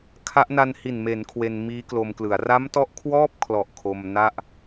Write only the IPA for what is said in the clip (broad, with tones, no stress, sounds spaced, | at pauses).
kʰ a˦˥ ʔ n a˧ n h i˨˩ n m e˩˦ n kʰ w e˧ n m iː˦˥ k l o˧ m k l ɯ˩˦ a̯ r a˦˥ m t ɔ˦˥ ʔ kʰ w ɔː˥˩ p̚ kʰ l ɔ˨˩ ʔ kʰ o˧ m n a˥˩ ʔ